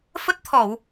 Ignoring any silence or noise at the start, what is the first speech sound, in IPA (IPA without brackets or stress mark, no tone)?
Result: f